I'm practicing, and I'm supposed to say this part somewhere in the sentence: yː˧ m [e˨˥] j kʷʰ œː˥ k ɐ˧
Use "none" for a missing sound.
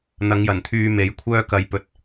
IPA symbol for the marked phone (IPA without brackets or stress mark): e˨˥